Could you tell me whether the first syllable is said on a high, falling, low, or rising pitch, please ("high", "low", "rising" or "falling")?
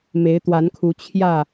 rising